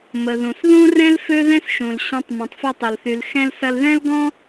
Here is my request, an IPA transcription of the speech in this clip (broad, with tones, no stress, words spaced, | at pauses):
mə˩ ðũ˩sðũ˥ rɛ̃˥l fø˥ðɛ̃˥sʃũ˩l ɕɐ̃˧tˤ mɛ̃˩tˤfɐ˧tˤɐ˩lθy˩l xɛ̃˧lsɐ˧lðɛ̃˥l ɡɔ̃˥